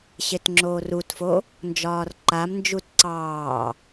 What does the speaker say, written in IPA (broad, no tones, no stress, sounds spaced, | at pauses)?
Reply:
ɕ e t ŋ͡ǁ oː r u t f o | n d͡ʒ ɒː r ǃ a m n d͡ʒ u t ǀ ɑː